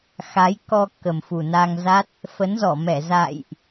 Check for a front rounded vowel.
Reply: absent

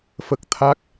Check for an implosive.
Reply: absent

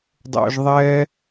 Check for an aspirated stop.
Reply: absent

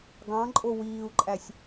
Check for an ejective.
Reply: present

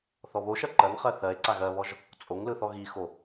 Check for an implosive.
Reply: absent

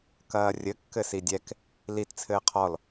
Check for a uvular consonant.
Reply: present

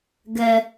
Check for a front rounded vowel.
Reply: absent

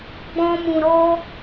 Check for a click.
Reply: absent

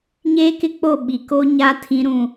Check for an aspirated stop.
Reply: present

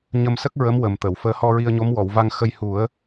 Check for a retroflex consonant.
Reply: absent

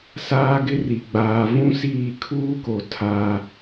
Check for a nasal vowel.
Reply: present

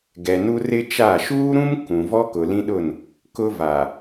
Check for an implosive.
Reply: present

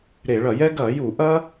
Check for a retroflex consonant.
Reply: present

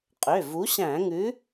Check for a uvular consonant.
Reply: present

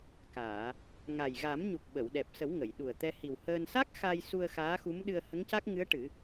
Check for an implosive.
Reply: present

